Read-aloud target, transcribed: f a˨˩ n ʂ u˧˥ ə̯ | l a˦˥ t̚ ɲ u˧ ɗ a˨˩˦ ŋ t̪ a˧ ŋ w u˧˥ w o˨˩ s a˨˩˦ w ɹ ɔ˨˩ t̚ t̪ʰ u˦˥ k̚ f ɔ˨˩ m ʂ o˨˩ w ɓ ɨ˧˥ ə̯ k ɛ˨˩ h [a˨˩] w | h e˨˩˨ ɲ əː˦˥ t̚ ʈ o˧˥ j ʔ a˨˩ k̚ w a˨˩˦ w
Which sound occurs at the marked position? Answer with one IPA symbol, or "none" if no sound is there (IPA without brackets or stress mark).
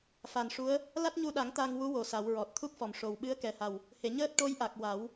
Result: a˨˩